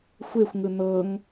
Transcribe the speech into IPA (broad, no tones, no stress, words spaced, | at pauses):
xʷexʷŋɯ n̪ɤŋ